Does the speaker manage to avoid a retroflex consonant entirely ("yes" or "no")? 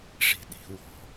no